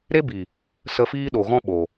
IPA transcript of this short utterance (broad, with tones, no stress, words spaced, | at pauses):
ɾe˦bi˨ | sə˧fiː˦ɗo˨ɣɔ̃˦ ɓo˨